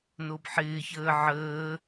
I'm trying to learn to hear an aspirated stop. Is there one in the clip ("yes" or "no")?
no